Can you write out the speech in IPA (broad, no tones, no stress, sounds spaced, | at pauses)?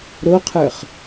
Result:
ɾ o qʰ ə˞ χ